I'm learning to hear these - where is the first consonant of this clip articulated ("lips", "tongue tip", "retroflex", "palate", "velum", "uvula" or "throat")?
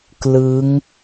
velum